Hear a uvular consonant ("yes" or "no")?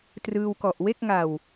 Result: no